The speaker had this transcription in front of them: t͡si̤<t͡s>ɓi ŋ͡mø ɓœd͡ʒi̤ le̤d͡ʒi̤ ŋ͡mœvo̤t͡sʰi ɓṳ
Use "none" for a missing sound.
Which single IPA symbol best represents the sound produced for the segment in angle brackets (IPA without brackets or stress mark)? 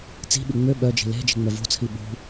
none